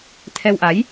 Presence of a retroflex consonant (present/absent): absent